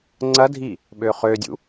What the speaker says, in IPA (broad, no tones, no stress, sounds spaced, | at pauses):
ŋ͡ǀ ɐ dʱ i | ɓ ø χ ø dʲ ṵ